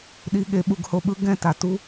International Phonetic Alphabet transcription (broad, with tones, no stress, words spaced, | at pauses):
ɗi˨ɠe˨ ɓu˨ɡho˨ɓɯ˨˦ ɡɛ̃˦˨ta˨ tu˦